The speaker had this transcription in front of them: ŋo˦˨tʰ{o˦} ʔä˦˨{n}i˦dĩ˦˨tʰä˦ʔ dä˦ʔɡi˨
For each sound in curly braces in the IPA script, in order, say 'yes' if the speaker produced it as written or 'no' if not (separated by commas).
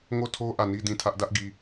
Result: yes, yes